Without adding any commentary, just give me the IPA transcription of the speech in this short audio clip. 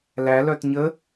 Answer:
l æ l œ t ɲ ə

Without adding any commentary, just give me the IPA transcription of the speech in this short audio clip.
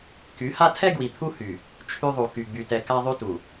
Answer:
k y˨˦ h a˦ tʰ ɛ˦ ɡ w i˨ t̪ʰ u˦ h y˨ | t͡ʃʰ y˦ ðˤ u˨ k y˨ ɡ͡b y˨ t ɛ˨ k a˦ ðˤ y˦ t u˨

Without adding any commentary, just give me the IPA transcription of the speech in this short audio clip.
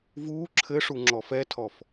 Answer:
v uː ǁʰ ɘ ʂ u ŋ͡ǁ ɔ f ɛ tʰ ɔ f

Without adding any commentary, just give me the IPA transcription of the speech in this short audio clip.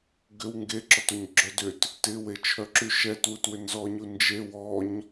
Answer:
ɡ ʏ w ŋ ɡ e ǁ ɔ t o ɲ ɡ͡ǁ œ d ʏ t | t ɪ w e t͡ʃʰ œ ǁ y ʃ ɛ t w u t w ʏ n z ɔ ɲ u n d͡ʒ e w ɔ ɲ

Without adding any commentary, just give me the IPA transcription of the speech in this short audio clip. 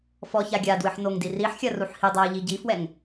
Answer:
f ɔ ç a ɡʲ a d w ɨ ħ n o ŋ d i r i ħ xʲ ɐ r u ħ h i dˤ a ə̯ ʎ i ɟ i f w ɛ ŋ

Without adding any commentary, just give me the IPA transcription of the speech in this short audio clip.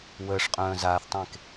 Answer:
w əː ʂ qʼ œ̃ː z aː θ tˤ ẽ k

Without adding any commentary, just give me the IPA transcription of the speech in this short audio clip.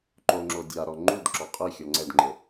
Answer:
ǃ o ŋ͡ǁ o dʲ a ɾ ɔ ŋ͡ǃ u d ǁ ɔ qʼ i xʲ ɔ ŋ͡ǀ ɛ d ŋ͡ǃ ɘ

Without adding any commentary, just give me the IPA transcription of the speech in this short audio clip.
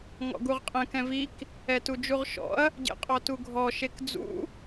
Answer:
ŋ ɔ̰ ɡ u ʁ qʼ ɛ̃ k ɛ̃ v i k | ɛ t u d͡ʒ u ʁ ʃ ɔ̰ ɐ̯ | ɟ ḛ qʼ ɔ t u ɡʱ ɔ ʃ e k d͡z ṵ

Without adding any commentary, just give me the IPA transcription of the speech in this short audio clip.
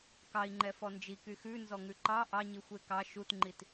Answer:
k ɑ i̯ ŋ͡ǃ ɛ f ɔ n d͡ʒ i k y x ʉ n z ɔ ŋ ʉ ǃ ɑ ʔ ɑ ɲ i xʷ e k ɑ ʃ u t ŋ͡ǃ i t

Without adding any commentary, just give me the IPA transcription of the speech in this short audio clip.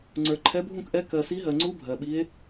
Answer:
ŋ͡ǀ ə˞˨ ǃʰ ɛ˧˥ bʱ ũ˥˨ k ʔ ɛ˧˥ k ɜ˨ s i˧˥ ɦ ɜ˨ ŋ͡ǀ u˧˥ bʱ ɜ˨ ɓ i˧˥ e̯

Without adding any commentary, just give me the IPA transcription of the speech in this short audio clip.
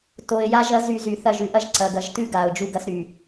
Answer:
t o˨ ɪ̯ j a˦ ʒ ɐ˦ z y˨ z y˨ θ ɐ˦˨ ʒ ʉ˨ ʔ ɐ˦ ʒ ǀ ɐ˨ ɡ ɐ˨ ʒ t ʉ˦ ɡ a˨ ʊ̯ d͡ʒ u˦ ɡ ɐ˦ s ɾ y˨

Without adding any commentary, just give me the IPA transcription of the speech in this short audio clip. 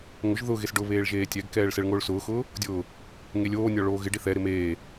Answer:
ŋ ʊ ʒ ð ʊ ɣ e s ɖ ʊ β eː ɭ ʒ eː tʲ ɛ ɡ k ɛː ɭ s ɛ ɭ ŋ oː ɭ s ʊː x ʊː | dʲ ʊː | ŋ e lʲ oː nʲ ɔ ɭ oː ɣ ɪ ɖ i θ ɛ ɾ ɪ m eː

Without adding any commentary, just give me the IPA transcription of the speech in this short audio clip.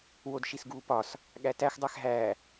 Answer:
w o d ʃ i s ɡ uː p ɒ s | ɠ æ t æ x dˤ æ x ɦ æː

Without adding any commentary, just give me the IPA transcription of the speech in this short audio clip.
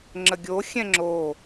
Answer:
ŋ͡ǁ ə ɡʲ o xʲ ɛ̃ ŋ͡ǁ o

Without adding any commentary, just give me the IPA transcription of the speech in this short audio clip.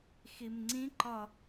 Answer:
x i m ŋ͡ǀ ĩ ǃ ɒ

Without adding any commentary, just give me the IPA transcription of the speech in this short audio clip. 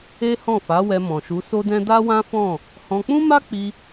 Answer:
e˦ h ɔ̃˦˨ f a˨˦ w ɛ˧ m ɔ̃˨ ʃ u˨˦ s o˦ d ɛ̃˦ d a˦ w ã˦ f ɔ̃˦˨ | h ɔ̃˧ k͡p ũ˦ m a˦ k͡p i˧

